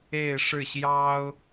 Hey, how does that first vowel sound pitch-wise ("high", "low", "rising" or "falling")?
falling